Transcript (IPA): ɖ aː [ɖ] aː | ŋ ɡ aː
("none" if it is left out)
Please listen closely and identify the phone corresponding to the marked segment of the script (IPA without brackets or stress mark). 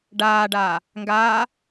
ɖ